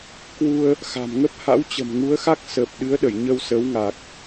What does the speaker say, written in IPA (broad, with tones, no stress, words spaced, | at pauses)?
kwu˧ə̯ | xa̤˨˩mŋə˦˥p̚ ha̰˧˥wt͡ɕə̤˨˩mŋu˨˦ə̯xa˦˥k̚ səː˨˩p̚ɗɨ˨˦ə̯ɗə˧˩j ɲə˧wsəː˨˦wŋa˨˩k̚